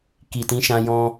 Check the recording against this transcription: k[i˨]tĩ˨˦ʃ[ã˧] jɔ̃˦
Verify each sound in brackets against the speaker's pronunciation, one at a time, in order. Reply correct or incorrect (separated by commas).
correct, correct